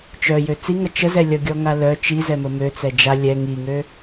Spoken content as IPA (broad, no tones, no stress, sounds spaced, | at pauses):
t͡ʃ œ j ø t͡s i ŋ ʌ t͡ʃ ə z ɛ lʲ ʌ ɡʲ ɔ ŋ a l œ t͡ʃ i z ɛ m ə m ø t͡s ɛ d͡ʒ a lʲ ɛ ŋ i ŋ ø